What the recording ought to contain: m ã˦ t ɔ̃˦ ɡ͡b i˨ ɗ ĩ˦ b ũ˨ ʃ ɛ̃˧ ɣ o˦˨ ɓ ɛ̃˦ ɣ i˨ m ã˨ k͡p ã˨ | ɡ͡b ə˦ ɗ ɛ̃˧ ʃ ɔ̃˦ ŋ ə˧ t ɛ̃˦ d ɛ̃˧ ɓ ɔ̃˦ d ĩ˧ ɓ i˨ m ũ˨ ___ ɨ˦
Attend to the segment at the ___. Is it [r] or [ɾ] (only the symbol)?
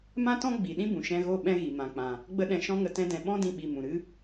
ɾ